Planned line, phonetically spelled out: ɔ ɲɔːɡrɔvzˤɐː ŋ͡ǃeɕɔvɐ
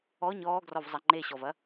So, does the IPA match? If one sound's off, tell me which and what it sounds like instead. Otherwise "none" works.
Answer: ɐː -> ɐ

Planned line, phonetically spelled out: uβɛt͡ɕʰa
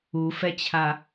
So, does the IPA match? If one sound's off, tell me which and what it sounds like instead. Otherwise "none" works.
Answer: β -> f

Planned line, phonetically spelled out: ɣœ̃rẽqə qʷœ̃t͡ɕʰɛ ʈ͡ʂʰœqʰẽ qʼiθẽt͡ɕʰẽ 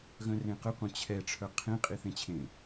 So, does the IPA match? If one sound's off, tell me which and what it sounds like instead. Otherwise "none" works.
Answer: none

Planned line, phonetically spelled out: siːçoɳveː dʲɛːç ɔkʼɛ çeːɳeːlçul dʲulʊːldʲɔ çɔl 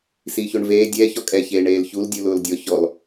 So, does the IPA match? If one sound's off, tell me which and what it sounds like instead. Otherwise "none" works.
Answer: none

